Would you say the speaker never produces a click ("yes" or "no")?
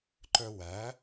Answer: no